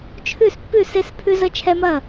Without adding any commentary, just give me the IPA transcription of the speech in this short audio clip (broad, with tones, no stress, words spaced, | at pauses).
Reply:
t͡ʃʰʉ˥˩spːʉ˥˩se˦s pʰʉ˦zə˦t͡ʃʰɛ˦mɐ˥˩